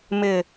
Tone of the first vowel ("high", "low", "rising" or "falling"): low